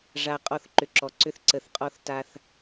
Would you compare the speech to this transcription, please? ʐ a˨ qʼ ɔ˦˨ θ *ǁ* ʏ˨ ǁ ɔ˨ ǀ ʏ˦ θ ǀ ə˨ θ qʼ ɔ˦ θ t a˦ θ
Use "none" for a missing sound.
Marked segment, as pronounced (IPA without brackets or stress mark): ǃ